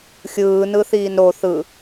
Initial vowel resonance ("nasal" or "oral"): oral